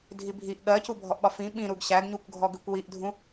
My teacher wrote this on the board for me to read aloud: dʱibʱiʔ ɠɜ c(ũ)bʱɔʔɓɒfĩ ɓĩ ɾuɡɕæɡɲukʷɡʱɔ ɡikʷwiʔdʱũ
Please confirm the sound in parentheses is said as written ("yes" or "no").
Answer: no